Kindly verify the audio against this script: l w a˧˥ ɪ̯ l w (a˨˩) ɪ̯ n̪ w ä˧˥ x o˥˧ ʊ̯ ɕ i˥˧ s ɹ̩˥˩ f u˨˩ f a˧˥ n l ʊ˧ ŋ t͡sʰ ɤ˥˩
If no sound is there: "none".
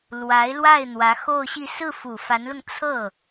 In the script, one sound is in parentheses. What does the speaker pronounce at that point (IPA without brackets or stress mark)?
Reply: a˥˩